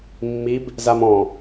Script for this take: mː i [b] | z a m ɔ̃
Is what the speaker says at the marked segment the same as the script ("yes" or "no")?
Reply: yes